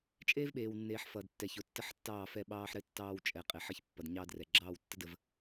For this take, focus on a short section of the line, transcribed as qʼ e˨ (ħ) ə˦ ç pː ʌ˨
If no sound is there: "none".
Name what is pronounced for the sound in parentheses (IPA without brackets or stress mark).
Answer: ħ